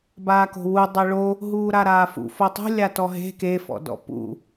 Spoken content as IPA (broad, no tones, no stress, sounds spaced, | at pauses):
b aː k o̤ w u dˤ ɐ ɭ o | ɦ uː ɾ a ɾ aː f ṵ f o tˤ ṳ lʲ a t ɔ ɦ e̤ k e f ɔ̰ d ɔ̰ p ṵ